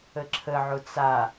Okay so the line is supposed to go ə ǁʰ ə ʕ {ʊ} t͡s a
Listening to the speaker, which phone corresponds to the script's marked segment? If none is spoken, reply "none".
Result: ʊ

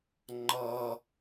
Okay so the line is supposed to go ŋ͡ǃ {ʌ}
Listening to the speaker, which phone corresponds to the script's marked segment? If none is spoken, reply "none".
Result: ʌ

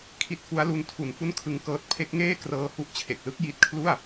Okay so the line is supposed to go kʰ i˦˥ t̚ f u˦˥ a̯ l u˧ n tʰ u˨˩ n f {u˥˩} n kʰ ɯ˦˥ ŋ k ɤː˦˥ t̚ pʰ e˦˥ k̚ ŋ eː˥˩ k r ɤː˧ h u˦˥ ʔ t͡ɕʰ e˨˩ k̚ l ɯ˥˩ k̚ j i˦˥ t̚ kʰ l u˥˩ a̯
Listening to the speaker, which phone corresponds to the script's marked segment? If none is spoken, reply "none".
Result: u˥˩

